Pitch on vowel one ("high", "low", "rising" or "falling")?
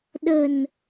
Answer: low